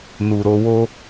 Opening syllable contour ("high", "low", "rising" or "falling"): low